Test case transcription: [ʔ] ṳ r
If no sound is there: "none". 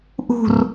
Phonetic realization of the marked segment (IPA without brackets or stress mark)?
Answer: ʔ